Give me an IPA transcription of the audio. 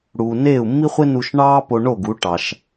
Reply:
ɽ uː˧ n eː˥˩ u̯ mː i˥ χʷ e˥ n u˧ ʃ ɳ ɑː˥ p o˧ ɳ o˥˩ ɡ u˩˥ ʈ ɑ˩ ʃ

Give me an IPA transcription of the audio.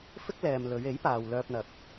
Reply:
f ɪ˥ k̚ l ɛː˨ m l ɵ˨˧ ɥ e˨˥ j p aː˨ w l œː˧ p̚ n̪ ɐ˨ k̚

